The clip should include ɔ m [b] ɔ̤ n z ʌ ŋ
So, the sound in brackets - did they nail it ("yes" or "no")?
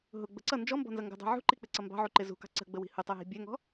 yes